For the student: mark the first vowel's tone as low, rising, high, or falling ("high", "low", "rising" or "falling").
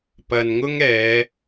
low